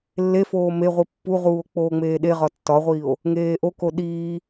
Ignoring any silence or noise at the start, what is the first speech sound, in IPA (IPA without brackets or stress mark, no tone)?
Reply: lː